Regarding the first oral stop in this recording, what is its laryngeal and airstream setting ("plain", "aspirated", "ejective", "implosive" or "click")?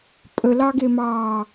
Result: ejective